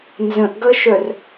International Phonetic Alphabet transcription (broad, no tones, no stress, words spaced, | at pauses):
nzə̃ʔɡʌʃœr